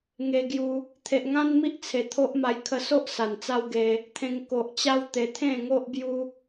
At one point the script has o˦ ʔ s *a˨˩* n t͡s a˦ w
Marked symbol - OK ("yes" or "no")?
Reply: yes